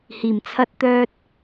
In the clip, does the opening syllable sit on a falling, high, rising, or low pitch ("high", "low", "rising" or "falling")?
low